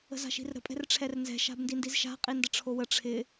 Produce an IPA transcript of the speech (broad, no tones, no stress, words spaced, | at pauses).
ə̤za̤ʃi̤rɾə̤ pʼɛ̤rʈ͡ʂʰɛrnzɛ̤ ʃa̤bndindizʃa̤ qʼindəʈ͡ʂʰowə ʈ͡ʂʰɪ